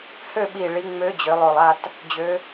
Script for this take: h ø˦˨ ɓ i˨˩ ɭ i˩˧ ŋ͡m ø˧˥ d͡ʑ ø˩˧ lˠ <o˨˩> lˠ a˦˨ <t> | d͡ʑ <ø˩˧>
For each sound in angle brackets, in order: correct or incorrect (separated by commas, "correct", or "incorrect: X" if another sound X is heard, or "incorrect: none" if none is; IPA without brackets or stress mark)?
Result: correct, correct, correct